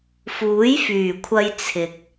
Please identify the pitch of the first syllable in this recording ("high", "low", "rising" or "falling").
rising